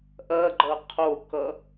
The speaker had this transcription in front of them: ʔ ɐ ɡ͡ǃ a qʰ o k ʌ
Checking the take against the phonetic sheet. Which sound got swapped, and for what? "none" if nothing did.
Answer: a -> ʌ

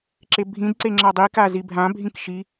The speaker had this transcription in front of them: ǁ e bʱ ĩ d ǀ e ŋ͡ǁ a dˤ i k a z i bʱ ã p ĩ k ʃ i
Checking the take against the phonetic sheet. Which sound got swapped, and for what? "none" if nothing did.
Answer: p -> bʱ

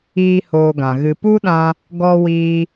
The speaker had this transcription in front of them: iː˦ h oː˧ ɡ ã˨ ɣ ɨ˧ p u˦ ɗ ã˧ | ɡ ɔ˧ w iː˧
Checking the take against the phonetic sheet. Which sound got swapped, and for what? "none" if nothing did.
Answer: none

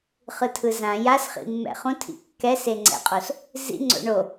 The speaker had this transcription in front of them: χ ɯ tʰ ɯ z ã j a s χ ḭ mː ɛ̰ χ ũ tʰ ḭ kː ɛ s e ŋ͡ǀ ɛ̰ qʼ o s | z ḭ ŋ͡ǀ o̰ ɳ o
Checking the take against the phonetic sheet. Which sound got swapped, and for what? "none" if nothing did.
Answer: none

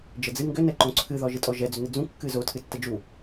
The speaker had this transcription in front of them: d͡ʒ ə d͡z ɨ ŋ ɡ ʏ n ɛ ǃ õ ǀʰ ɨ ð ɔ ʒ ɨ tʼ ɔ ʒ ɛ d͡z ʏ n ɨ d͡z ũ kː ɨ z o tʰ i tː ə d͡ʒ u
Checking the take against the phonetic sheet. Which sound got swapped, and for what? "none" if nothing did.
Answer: i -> ɨ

